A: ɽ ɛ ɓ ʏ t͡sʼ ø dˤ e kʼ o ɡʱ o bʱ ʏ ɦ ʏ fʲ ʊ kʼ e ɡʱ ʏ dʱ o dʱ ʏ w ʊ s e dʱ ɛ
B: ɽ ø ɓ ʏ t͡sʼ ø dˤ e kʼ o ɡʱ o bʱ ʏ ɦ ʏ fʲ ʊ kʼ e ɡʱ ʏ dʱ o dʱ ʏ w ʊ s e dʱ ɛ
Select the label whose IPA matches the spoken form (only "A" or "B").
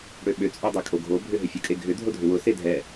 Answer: B